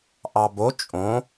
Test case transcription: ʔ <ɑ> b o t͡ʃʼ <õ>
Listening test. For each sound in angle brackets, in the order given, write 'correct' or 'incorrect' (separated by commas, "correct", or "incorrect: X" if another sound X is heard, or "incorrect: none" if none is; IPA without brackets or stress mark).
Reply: correct, correct